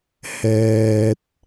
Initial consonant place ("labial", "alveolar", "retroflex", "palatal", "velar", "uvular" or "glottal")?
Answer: glottal